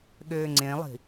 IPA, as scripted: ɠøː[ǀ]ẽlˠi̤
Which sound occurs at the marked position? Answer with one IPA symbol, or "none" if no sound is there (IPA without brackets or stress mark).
ŋ͡ǀ